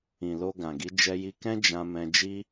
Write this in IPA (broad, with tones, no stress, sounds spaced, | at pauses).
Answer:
ĩ˨ l o˧ ɡ ã˨ ɡ i˨˦ d͡ʒ ɛ˧ j i˧ k ɛ̃˦ d͡ʒ ã˧ m ɛ̃˧ d͡ʒ i˦